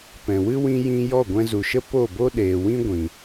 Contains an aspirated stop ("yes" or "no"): no